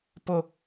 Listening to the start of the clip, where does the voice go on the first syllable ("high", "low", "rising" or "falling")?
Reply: low